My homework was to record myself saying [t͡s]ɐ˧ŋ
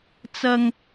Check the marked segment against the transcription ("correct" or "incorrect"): correct